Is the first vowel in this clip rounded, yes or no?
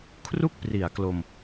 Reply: yes